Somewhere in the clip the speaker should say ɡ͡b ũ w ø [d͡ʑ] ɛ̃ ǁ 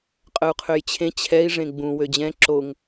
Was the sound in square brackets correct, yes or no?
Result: yes